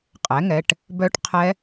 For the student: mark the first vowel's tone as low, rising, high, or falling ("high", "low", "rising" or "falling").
rising